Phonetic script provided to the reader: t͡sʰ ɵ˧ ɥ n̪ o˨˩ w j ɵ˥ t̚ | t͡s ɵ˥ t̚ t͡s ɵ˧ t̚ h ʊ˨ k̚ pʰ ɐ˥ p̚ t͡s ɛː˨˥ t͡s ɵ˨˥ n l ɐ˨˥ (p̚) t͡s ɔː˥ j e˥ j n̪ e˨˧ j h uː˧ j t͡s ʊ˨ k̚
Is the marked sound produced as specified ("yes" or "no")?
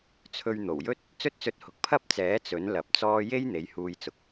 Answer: yes